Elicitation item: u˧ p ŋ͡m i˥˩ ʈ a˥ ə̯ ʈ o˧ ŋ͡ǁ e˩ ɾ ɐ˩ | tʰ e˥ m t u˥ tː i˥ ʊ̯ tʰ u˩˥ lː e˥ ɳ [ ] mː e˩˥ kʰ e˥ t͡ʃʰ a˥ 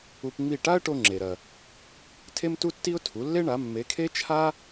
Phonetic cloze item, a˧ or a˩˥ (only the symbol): a˩˥